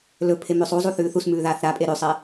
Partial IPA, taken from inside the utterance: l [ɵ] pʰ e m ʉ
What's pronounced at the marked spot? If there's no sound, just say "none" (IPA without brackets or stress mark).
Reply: ɵ